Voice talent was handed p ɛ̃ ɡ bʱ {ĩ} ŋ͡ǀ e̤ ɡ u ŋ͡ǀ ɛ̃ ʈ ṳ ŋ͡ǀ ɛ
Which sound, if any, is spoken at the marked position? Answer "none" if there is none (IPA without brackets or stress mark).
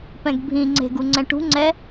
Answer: ĩ